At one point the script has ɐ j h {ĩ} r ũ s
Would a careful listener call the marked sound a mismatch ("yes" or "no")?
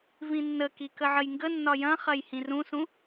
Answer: no